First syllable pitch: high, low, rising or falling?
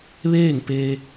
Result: falling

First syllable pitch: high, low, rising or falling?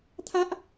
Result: high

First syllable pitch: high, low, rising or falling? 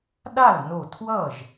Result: falling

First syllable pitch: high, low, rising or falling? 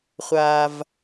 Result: low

